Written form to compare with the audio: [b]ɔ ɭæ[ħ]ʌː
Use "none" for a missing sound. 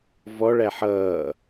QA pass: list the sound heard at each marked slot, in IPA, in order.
v, ħ

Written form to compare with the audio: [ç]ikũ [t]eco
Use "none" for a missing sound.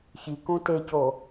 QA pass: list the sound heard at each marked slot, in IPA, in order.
ç, t

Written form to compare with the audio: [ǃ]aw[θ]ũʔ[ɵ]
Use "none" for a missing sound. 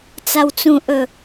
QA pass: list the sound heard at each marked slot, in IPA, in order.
t͡s, t͡s, ɵ

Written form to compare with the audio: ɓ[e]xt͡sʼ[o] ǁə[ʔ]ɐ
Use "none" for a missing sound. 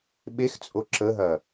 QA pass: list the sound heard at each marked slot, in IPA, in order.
e, o, ɦ

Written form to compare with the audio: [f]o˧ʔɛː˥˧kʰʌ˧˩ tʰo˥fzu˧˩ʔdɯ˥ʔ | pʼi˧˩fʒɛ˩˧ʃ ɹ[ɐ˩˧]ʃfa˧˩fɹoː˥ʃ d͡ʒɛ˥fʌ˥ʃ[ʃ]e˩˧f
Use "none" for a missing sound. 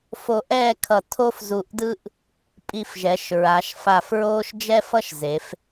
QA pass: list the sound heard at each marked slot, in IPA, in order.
f, a˩˧, z

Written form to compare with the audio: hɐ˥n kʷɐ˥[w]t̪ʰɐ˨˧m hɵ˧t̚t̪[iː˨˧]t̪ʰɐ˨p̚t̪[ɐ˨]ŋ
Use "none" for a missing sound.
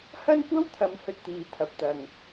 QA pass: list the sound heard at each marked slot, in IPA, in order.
w, iː˨˧, ɐ˨

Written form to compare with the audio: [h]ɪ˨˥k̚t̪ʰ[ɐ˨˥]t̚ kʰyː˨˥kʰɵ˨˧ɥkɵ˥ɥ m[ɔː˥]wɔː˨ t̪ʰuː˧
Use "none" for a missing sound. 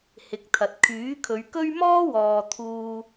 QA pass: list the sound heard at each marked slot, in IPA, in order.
h, ɐ˨, ɔː˥

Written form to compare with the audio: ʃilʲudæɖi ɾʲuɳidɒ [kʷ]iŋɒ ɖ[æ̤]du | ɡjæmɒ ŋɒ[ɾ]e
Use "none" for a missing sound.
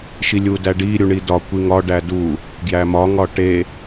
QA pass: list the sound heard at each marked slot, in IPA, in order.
kʷ, æ, ʈ

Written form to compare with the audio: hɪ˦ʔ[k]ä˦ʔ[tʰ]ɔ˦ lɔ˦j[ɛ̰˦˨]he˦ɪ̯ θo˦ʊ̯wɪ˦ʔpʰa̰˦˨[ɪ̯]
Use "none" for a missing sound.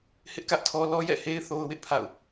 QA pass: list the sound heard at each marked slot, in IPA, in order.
k, tʰ, ɛ̰˦˨, ʊ̯

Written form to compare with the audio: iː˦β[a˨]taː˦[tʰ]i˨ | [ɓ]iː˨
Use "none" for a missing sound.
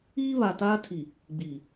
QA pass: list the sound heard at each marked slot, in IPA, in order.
a˨, tʰ, ɡ͡b

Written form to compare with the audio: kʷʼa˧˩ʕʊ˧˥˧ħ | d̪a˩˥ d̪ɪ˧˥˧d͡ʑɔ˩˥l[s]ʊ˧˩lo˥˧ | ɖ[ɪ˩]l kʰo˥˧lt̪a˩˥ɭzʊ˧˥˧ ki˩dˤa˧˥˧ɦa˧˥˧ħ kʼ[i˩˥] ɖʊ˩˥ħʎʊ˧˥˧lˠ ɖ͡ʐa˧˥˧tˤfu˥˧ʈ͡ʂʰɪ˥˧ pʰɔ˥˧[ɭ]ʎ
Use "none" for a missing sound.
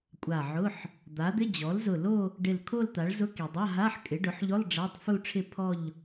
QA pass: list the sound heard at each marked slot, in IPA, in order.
z, ɪ˧˩, ɪ˩˥, none

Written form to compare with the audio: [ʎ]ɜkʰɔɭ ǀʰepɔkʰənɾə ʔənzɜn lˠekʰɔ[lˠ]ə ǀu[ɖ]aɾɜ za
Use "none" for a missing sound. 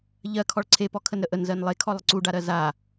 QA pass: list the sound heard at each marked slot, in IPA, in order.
ʎ, lˠ, ɖ

